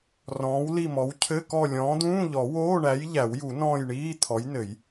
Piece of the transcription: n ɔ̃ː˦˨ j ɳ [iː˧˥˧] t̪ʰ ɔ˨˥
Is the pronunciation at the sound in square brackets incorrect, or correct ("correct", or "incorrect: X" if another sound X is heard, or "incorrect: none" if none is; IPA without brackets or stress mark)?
correct